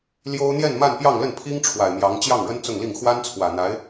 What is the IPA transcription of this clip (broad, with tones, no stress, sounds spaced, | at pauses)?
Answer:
l j o˥ ʊ̯ n̪ j ɛ˥˧ n m a˥˧ n p j ɑ˥˧ ŋ l ə˥˩ n pʰ i˥ ŋ ʈ͡ʂʰ w a˨˩ ɪ̯ m j ɑ˧˥ ŋ t͡ɕ j ɑ˥˩ ŋ ɻ ə˥ n t͡s ʊ˥˧ ŋ l i˥˩ ŋ x w a˥ n t͡sʰ w ä˨˩ n̪ a˧˥ ɪ̯